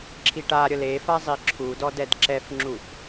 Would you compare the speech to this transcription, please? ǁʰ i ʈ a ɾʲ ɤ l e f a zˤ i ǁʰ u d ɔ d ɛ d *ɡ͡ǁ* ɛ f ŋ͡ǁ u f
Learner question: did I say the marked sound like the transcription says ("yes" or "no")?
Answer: no